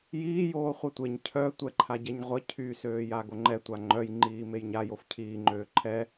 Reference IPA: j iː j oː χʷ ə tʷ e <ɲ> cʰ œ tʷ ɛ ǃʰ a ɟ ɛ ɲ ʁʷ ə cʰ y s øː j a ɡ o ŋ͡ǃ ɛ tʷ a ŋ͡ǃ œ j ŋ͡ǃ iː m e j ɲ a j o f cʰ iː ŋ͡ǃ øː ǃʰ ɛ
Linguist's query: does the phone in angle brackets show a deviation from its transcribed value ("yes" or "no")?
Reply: no